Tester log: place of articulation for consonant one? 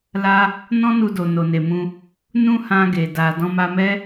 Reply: alveolar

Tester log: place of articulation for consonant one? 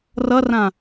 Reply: alveolar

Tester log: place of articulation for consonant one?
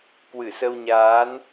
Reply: velar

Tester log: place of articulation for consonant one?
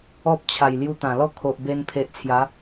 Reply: labial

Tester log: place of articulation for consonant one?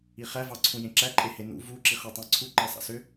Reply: uvular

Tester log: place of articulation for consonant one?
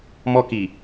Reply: labial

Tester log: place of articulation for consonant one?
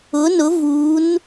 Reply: alveolar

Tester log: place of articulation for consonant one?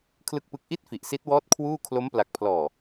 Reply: velar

